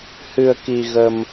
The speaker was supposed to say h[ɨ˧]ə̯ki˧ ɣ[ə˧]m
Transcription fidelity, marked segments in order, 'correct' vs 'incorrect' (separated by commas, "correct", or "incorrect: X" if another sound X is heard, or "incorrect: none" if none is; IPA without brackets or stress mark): correct, correct